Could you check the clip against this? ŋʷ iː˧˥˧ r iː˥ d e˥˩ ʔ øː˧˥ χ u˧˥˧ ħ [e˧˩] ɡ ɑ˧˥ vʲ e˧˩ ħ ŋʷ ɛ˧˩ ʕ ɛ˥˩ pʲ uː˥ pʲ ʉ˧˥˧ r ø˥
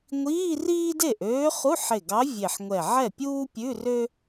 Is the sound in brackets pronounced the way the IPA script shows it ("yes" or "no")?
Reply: yes